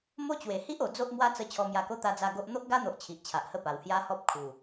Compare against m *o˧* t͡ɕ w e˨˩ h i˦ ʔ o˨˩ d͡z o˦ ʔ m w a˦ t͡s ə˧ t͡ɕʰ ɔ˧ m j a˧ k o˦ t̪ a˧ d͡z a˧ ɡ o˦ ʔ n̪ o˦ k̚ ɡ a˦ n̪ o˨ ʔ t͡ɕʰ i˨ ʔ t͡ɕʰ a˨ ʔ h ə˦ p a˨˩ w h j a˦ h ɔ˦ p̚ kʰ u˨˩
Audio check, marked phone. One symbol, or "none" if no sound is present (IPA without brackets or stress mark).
o˦